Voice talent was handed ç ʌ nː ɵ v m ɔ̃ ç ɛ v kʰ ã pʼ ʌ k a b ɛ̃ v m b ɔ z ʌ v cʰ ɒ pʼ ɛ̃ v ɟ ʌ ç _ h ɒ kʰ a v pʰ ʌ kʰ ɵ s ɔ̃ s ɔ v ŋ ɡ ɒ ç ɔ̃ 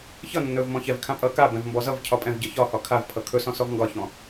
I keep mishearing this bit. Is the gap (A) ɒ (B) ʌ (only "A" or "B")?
A